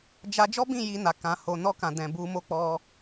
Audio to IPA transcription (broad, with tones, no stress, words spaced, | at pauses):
d͡ʒa˦ d͡ʒɔ˦bĩ˦˨ ji˧na˨ kã˨ ho˨nɔ˧kã˨ dɛ̃˨bu˧mo˦k͡pɔ˧